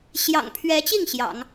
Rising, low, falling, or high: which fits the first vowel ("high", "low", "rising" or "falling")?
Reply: low